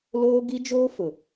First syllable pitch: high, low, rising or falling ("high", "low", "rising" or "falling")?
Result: high